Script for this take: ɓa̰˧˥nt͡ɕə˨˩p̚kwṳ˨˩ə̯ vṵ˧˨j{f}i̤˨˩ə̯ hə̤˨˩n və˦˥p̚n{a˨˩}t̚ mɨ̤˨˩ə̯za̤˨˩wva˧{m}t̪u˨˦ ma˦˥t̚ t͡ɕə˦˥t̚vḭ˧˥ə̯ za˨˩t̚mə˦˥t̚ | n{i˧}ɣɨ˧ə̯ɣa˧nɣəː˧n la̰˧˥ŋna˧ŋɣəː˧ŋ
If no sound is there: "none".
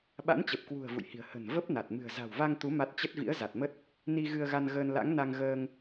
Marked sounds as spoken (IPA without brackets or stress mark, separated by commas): h, a˨˩, ŋ, i˧